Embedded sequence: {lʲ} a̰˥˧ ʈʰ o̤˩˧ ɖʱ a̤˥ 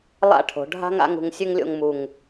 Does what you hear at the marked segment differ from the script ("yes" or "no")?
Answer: yes